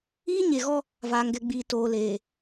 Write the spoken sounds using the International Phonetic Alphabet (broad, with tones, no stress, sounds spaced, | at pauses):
iː˦ ɲ e˨ ɣ ɔ˦ | v aː˨ ŋ ɡ ɛ˨ ɡ͡b iː˨ t oː˨ l eː˨